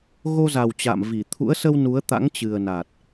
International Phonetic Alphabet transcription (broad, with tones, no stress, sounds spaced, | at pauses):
ɣ o˧ z a˨˩ w t͡ɕ a̰˧˨ m v i˧˩ t̪ʰ ṵ˧˥ ə̯ s ə˧ w n u˨˦ ə̯ t̪ a̰˧˥ ŋ t͡ɕ ɨ˨˩ ə̯ n a˨˩ t̚